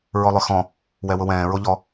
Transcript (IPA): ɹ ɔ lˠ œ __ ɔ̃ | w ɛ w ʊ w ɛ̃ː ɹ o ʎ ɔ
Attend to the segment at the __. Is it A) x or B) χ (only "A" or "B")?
A